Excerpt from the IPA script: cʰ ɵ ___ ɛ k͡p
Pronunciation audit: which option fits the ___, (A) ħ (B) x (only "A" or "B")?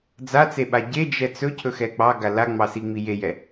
B